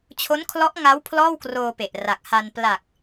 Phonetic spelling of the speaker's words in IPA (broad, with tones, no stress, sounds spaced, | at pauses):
t͡ɕʰ o˦˥ n kʰ l ɔ˦˥ ʔ ŋ a˦˥ w pʰ l ɔː˥˩ w k r oː˧ p e˨˩ ʔ r a˨˩ k̚ h a˧ n p l a˨˩ k̚